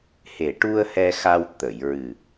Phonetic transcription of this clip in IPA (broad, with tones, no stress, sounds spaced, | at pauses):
h e˨˩ ʈ u˧ ə̯ h ɛ˧ x a˧ w t̪ ə˨˩˨ j ɹ ɨ˨˩